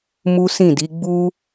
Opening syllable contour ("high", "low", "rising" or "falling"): high